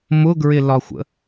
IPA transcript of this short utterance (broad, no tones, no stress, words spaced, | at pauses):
mʊɡɹɪlɒxʷə̰